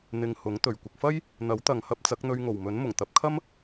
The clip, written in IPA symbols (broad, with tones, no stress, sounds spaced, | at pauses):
n̪ ɪ˨ ŋ h ʊ˨˥ ŋ t̪ ɵ˨˩ ɥ kʷ ɪ˨ k̚ f ɐ˥ j | n̪ ɐ˨˥ w t̪ ɐ˨ ŋ h ɐ˧ p̚ t͡s ɐ˨˥ k̚ n̪ ɵ˧ ɥ ŋ o˨˩ w m ɵ˨˥ n m ʊ˨˩ ŋ t̪ ɐ˨˥ p̚ kʰ ɐ˥ m